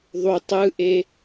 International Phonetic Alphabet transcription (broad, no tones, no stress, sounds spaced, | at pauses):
ðˤ u tˤ ɯ ʔ e